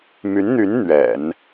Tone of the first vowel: rising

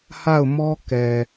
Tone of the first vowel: falling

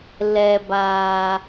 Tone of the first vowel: low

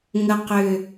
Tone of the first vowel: low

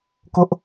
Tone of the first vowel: high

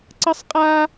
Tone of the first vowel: high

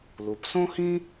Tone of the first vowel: low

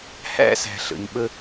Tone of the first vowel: high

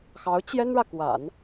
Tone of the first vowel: rising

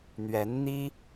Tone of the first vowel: rising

